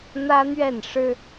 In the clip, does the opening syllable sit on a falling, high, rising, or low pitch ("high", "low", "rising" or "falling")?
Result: high